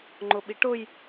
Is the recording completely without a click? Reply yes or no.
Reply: no